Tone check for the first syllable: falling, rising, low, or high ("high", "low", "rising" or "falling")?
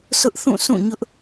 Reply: high